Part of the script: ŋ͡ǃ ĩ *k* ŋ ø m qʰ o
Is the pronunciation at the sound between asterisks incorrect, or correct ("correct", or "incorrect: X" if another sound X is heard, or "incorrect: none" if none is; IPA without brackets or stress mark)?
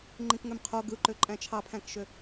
correct